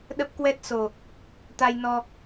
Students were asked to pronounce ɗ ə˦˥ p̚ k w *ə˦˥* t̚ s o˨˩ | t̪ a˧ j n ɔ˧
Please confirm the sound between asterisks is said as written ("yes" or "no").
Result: no